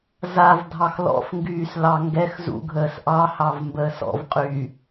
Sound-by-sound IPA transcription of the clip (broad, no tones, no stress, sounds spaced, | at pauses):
z a v dʱ ɑ x l ɔ̰ f ŋ ɡ yː s l ɑ ŋ ɡ ɛ x z ṵ ɡʱ əː s ʔ ɑ h ɑ v m b əː s ɔ̰ v qʼ y